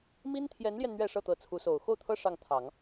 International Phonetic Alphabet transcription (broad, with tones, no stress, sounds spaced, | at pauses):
m i˥ n t̪ʰ j ɛ˧˥ n l j ɛ˧ n n̪ ɥ ɛ˥˧ ʂ ɤ˥˩ t̪ ɤ˧˥ t͡sʰ u˧˥ s o˨˩ ʊ̯ x o˥˩ ʊ̯ t̪ʰ ɤ˥ ʂ ɑ˥˩ ŋ t̪ʰ ɑ˨˩˦ ŋ